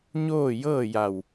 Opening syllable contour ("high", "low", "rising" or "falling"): falling